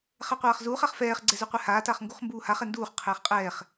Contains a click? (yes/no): yes